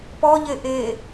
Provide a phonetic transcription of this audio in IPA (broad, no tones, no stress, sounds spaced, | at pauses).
p ɔ ʎ e ʔ e